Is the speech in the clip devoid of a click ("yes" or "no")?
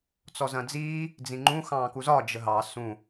no